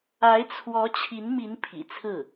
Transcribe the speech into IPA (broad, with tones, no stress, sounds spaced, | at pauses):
a˧˥ ɪ̯ t͡sʰ w ɔ˧˥ t͡ɕʰ i˧˥ n m i˧˥ n pʰ ḭ˨˩ t͡sʰ ɹ̩˥˩